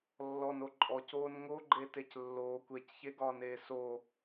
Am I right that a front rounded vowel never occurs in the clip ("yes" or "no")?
yes